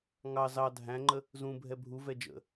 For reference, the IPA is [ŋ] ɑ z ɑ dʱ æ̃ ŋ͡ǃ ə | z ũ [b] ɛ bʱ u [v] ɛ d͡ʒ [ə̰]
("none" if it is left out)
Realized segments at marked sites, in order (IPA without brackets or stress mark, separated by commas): ŋ, bʱ, v, ə̰